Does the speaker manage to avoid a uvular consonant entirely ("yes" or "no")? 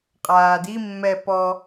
no